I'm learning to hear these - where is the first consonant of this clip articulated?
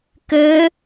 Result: velum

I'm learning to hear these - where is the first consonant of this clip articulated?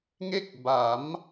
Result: velum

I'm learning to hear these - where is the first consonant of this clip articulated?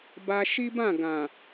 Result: lips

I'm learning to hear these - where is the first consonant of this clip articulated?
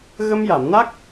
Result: velum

